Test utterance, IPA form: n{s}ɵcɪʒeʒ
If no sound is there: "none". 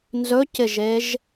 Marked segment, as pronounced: z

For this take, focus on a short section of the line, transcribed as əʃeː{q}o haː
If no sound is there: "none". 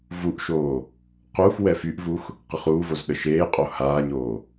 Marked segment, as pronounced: qʼ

